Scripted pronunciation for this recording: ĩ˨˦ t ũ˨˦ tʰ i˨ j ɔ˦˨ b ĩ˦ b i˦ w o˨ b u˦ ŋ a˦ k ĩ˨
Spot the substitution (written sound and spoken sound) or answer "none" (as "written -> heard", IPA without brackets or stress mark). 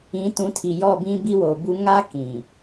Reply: none